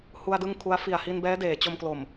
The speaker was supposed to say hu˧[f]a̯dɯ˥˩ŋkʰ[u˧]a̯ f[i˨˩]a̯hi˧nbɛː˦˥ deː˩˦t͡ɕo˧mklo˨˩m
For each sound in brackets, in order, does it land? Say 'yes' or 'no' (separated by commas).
no, no, yes